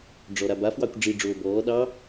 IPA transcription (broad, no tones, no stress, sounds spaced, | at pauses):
ɖ͡ʐ ɔ ɾ a b a f w ɑ kʷ ɖ͡ʐ i ɖ͡ʐ oː b ɔː ɗ ɑ